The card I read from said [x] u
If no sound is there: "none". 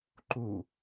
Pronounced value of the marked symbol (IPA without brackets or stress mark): ǃ